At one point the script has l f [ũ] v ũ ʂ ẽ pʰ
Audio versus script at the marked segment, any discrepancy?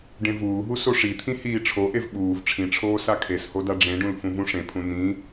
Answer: no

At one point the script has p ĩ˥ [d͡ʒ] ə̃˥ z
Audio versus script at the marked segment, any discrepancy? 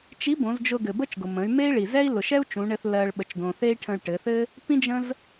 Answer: no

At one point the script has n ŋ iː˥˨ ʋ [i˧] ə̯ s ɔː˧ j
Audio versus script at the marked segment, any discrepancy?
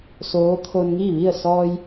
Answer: yes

